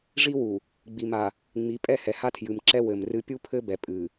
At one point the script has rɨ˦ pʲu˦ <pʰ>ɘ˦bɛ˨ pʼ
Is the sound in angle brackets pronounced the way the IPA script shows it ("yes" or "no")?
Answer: yes